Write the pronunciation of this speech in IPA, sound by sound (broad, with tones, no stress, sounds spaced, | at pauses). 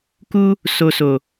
k u˦ | s o˧ s o˨